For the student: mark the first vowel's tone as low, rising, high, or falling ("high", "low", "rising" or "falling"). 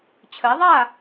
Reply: rising